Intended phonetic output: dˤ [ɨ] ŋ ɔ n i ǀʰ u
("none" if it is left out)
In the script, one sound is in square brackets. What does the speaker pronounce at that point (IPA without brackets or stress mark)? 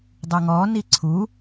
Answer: ɨ